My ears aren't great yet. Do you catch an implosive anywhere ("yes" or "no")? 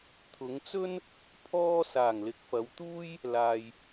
no